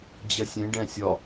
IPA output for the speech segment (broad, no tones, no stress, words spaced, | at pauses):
d͡ʑɛsʲẽ ɖɛ̃sʲɒ